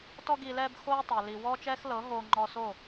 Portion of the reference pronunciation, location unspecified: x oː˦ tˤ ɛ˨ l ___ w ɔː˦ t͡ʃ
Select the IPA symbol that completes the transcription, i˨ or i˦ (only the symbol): i˨